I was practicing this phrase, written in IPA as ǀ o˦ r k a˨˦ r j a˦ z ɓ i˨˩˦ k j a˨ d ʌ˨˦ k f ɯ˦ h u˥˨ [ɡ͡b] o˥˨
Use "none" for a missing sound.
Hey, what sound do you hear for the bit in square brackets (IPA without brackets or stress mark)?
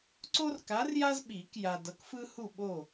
ɓ